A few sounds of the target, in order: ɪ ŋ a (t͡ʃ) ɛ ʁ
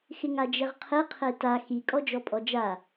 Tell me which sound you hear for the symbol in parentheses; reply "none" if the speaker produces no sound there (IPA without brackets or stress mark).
d͡ʒ